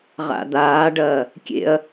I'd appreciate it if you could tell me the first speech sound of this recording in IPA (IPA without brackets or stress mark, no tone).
ʁ